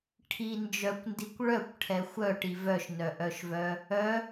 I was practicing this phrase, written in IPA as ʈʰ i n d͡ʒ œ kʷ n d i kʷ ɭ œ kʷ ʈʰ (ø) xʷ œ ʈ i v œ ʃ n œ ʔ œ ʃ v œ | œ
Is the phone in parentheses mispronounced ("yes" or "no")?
yes